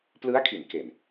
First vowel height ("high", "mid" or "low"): high